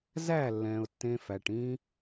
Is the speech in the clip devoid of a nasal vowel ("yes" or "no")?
no